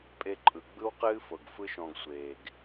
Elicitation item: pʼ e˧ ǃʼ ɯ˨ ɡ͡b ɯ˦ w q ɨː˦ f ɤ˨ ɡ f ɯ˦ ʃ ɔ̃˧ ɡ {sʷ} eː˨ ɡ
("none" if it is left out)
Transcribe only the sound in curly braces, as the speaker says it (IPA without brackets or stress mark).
sʷ